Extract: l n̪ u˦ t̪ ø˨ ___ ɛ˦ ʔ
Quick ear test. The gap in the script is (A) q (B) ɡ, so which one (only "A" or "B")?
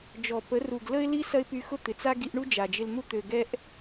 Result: B